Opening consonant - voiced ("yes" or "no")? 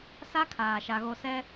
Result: no